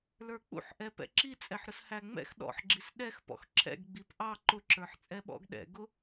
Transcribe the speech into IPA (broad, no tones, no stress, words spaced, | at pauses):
lə˞k͡pṵħʔɛ pɛ̰ǁi t͡sʼɛħɾʊshæŋ͡mɛ̰x ɗɔ̰ħɡ͡ǁis ɗɛx pɔ̰xǁʰɛ̰ɡ ɡ͡bipʔɑ ǃʊǁə˞ħt͡sʼɛ ɓɔ̰ɡɗɛ̰ ɡʊ